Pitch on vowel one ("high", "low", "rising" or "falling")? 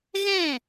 falling